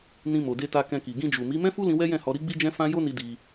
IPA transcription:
n ĩ˧ m o˨ d e˧ t a˧ k ɛ̃˧ k i˨ ɡ ĩ˧ d͡ʒ u˨ m i˨˦ m ɛ̃˦ f u˦ l ĩ˧ w ɛ˦ j ɛ̃˦˨ h ɔ˧ ɾ i˦ ɡ͡b i˦ d͡ʒ ɛ̃˦ f ã˦ j o˦ n i˧ d i˧

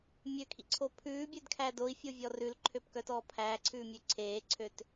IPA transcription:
mʲ ø kʰ ḭ ǀʰ o pʰ ʉː bʲ ø d kʰ æ d o i̯ fʲ o vʲ ɔ r ʉ l ǃʰ ø p k œ t ɔː pʰ æː ǀʰ ʉː mʲ ʉ ǀʰ eː ǀʰ ø t

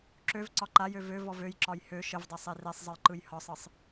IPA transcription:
ǁ ø v ǀ ɒ ǃ a j ø v ø v ɔ v ø j ǁ ɒ j h ø ʃ ə v dˤ e sˤ e r e sˤ zˤ ə j ǃ ɯ j h ɒ sˤ ɯ sˤ

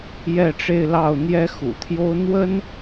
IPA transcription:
j ɛ˥˧ ʈ͡ʂ e˥˧ ɪ̯ l ɑ˥˩ ʊ̯ n̪ j ɛ˥ x ṵ˨˩ t̪ʰ j o˥ ʊ̯ n̪ w ə˥ n

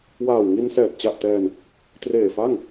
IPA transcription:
w aː˨˩ w ŋ i˧ n s ɛː˨˩ t̚ t͡ɕ a˨˩ ʔ t ɛː˧ n | t r eː˨˩ f a˥˩ ŋ

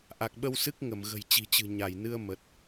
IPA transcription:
ʔ a˨˩ k̚ ɓ ə˧ w s ɨ˦˥ k̚ ŋ ə˧˩ m ɣ ə̤˨˩ j t͡ɕ i̤˨˩ t͡ɕ ɨ̤˨˩ ɲ a˧˩ j n ɨ˧ ə̯ m ə˨˩ t̚

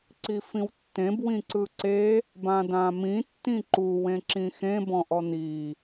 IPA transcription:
ǀ i f ĩ w tː ẽ b w ĩ ǀ ɯ ǀ e | b ã d ã m ĩ tː ĩ ǃ u w ẽ ǁ ĩ x ẽ b ɔ̃ ʔ ɔ n̪ i

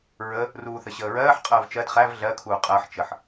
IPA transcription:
ɹ ə | r uː θ ə ɕ əː ɹ ɜː ħ qʼ əː v t͡ʃ ɜ d χ æ v ɮ ɜ kʰ uː qʼ əː ħ t͡ʃ ə ħ

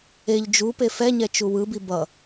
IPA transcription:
e ʎ d͡ʒ u p e f ɛ ɲ ɛ t͡ʃ u w ɯ b i b ʌ

